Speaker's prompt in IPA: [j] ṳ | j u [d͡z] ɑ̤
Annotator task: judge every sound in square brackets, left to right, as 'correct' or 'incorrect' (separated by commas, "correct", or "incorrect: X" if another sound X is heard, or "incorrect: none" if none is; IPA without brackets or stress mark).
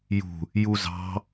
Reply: correct, incorrect: z